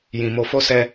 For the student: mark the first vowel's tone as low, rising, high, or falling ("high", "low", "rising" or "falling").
low